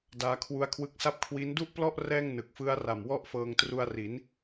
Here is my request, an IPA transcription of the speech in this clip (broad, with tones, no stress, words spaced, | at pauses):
daː˦˥kʰwu˦˥a̯kʰwɯ˦˥k̚sa˥˩p̚ kʰwi˦˥ndu˥˩ʔplɔ˥˩ʔ rɛː˥˩ŋ nɯ˨˩k̚fɯ˦˥a̯ ra˨˩mwɔ˥˩ʔfɤː˧ŋ tru˧a̯ri˩˦n